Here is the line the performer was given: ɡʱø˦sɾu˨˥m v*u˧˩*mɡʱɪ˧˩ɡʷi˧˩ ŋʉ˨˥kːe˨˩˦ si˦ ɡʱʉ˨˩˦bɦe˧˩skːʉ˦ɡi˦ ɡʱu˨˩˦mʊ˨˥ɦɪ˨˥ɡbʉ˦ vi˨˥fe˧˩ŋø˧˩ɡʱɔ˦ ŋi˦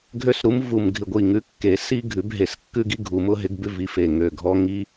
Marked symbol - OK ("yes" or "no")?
yes